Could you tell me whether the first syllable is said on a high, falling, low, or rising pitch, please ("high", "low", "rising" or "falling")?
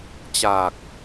low